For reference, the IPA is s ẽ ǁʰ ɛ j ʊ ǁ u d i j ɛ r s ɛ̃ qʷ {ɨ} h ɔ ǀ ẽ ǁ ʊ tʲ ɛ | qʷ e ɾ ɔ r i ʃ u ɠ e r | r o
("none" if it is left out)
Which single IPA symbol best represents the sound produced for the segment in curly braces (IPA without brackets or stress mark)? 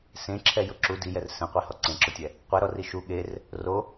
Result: i